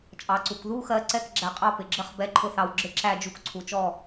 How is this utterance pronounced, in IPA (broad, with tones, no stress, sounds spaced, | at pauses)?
t͡ʃʼ ɑ˩ ǀ u˩ k ð u˥˨ x ɜ˨˦ ǀ ɛ˥˨ k ɡ͡ǁ æ˨˦ qʼ ɑ˥˨ p ɪ˩ ɡ͡ǁ ə˥˨ χ b ɛ˥˨ ǃʰ ʊ˦ θ ɑ˨˦ w ɡ͡ǁ ɪ˥˨ ǁ æ˥˨ d͡ʒ u˦ k ǀʰ u˩ t͡ʃ ɔ˥˨